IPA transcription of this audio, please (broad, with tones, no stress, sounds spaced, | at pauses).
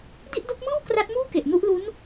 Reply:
d i˥˩ ʔ d o˦˥ k̚ m ɯː˥˩ w k r a˦˥ t̚ m uː˥˩ k e˨˩ ʔ n u˦˥ ʔ l u˦˥ n